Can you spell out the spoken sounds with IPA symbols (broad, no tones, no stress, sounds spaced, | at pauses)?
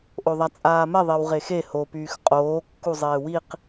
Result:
ʔ o ðˤ a t͡sʼ aː m ɛ ðˤ e w ʁ e x e h o p yː x qʼ oː kː u zˤ eː w i q